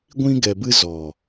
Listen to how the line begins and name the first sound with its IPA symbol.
ɡʷ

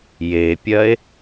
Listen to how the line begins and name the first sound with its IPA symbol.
j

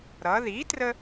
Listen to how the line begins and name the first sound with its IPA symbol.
ɾ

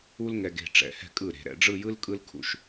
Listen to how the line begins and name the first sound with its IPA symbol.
u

